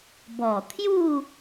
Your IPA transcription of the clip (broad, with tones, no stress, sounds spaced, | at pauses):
b ɔ˨˩ t̪ʰ j u˥˧